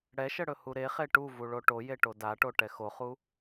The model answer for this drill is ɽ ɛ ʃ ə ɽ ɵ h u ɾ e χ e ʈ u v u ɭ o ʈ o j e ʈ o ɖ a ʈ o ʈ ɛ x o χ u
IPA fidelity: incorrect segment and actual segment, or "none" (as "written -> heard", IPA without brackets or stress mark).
ɖ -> d